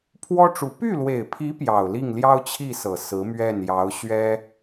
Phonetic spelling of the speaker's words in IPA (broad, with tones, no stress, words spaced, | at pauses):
pʰwɔ˥ʈ͡ʂu˧˥ py˥˩lwe˨˩ɪ̯pʰi˧˥ pjɑ˨˩ʊ̯li˥˩ŋ ljɑ˥ʊ̯ t͡ɕʰi˥˩ sɤ˨˩sɹ̩˧˥ mɥɛ˥˩njɑ˧˥ʊ̯ ɕɥɛ˥